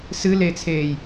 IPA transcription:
sɨlet͡sʰeːj

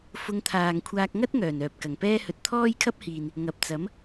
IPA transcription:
fʊ˧ŋt̪ʰaː˨ŋkʷʰaː˧k̚ ŋɐ˥t̚ŋœː˨˩n œː˨p̚kɐ˨˩ŋpɛː˥hɵ˧t̚ t̪ʰɔː˥jkʰɐ˥p̚hiː˨n | ŋɐ˨p̚t͡sɐ˨˥m

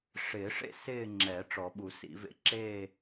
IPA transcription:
ʂɪː˨˩˦ʂḛ˥˧ sɪː˥˧ŋ͡ǁɛ˨˩˦ ʈ͡ʂɔ˨˩˦ɓu˨˩˦sḭ˨˩˦vḛ˥˧ ǁeː˥˧

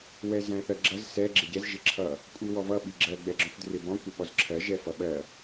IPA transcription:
wɛzæ̃θɜɡ͡ǁʌz sɛ ɡ͡ǁɪɟɛz ʒɪǁʰʌ | kʷʼiwɔvʌ ɓiɡ͡ǁɜ ɡ͡bɛɡ͡ǁɔ̃fdrɪbɔ̃ kʷʌɓɔzǁʰɜ ʒɛfʌɓɜ

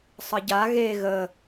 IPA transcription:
sˤəɟa ɣe ɣə

